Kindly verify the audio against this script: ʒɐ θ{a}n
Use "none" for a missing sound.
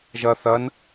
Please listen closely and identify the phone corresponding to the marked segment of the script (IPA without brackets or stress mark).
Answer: ɐ